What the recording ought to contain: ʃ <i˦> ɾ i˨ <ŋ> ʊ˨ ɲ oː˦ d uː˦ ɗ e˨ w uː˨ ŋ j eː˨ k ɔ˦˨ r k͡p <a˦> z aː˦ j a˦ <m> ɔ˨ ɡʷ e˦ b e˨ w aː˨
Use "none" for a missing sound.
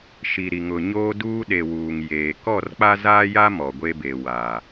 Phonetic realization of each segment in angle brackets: i˨, ŋ, a˦, m

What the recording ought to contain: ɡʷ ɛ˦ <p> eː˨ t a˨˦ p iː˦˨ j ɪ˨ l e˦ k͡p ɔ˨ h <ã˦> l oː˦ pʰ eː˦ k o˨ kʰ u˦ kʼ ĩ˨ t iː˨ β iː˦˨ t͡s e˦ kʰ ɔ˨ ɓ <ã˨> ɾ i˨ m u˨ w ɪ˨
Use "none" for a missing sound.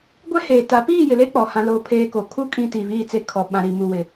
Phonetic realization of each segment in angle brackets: h, ã˦, ã˨

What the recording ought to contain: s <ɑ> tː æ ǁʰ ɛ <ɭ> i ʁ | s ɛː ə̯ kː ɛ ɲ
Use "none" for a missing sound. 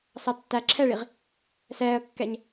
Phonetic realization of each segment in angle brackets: ɑ, ɭ

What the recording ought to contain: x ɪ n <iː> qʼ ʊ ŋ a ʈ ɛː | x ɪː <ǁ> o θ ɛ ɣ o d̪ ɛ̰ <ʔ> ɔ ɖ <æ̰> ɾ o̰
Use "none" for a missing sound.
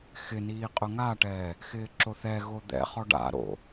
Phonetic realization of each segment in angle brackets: iː, ǁ, χ, a̰

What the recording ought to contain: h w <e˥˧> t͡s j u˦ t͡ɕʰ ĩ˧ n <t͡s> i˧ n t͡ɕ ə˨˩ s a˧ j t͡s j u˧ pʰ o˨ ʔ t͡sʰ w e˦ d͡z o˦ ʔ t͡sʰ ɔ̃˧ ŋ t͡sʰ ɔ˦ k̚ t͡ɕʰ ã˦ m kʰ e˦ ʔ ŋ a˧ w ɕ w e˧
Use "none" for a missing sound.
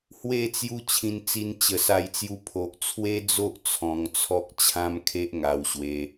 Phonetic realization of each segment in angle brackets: e˥˧, t͡s

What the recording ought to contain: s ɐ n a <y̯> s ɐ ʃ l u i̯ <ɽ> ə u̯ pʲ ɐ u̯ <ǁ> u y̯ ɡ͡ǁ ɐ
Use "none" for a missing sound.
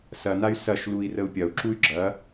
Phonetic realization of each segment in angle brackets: y̯, r, ǁ

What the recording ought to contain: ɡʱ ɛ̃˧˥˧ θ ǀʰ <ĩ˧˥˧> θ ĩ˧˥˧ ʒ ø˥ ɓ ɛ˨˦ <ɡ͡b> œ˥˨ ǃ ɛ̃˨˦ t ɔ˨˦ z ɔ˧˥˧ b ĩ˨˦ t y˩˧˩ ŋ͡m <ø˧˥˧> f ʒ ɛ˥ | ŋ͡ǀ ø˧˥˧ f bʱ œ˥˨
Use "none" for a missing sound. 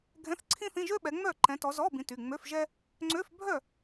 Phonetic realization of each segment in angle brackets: ĩ˥, ŋ͡m, ø˧˥˧

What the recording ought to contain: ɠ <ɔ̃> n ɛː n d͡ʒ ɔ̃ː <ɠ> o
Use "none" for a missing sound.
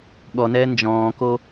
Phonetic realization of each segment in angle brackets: ɔ, k

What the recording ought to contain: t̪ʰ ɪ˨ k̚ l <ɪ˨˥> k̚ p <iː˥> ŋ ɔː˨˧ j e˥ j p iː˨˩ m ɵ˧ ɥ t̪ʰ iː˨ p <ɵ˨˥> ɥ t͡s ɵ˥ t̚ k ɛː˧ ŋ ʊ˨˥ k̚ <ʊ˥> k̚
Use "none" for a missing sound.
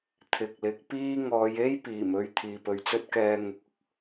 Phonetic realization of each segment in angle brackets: ɪ˨˥, iː˥, ɵ˨˧, ʊ˥

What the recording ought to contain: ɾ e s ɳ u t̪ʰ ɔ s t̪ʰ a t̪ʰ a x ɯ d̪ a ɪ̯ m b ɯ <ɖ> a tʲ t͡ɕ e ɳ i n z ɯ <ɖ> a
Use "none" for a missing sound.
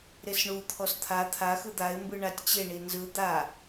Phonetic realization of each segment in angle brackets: ɳ, d̪

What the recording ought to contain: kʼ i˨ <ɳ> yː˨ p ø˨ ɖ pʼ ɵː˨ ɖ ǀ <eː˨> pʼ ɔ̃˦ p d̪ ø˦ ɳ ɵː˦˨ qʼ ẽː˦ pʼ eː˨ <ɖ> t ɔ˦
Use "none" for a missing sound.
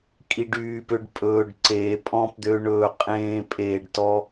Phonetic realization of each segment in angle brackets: ɖ, eː˨, ɖ

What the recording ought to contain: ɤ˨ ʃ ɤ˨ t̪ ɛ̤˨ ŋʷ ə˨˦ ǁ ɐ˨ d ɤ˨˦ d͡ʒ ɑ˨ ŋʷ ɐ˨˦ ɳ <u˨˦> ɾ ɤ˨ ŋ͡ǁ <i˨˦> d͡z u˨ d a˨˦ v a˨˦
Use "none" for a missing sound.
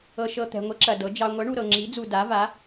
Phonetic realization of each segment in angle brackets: u˨, i˨˦

